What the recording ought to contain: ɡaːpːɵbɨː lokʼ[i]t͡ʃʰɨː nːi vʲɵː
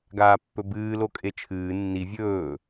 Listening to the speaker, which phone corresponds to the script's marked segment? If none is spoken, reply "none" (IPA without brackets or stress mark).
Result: e